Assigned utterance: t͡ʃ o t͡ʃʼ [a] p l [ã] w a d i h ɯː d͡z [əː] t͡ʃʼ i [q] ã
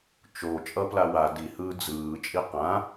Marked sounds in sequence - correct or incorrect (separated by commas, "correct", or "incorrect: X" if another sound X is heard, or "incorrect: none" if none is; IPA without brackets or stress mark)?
incorrect: ʌ, incorrect: a, incorrect: ɯː, correct